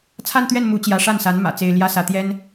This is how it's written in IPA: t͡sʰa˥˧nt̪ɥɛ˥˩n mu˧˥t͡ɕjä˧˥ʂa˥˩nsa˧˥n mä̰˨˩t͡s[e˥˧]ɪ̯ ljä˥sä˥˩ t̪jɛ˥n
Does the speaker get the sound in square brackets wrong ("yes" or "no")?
yes